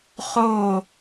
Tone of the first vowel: falling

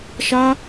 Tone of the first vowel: high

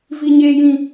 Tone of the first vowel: high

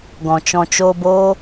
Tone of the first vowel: low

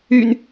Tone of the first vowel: low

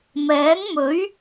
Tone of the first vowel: rising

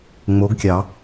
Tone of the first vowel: rising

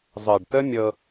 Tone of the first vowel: low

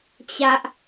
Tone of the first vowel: high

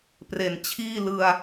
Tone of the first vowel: low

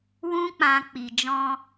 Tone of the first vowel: high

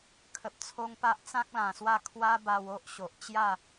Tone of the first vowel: low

